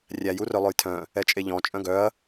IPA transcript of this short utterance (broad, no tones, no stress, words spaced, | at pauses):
rʲæjurœ lˠɵjtʰœ̃ | ɛt͡ʃʼeʎɔ̃ t͡ʃʼœ̃ɡœɐ̯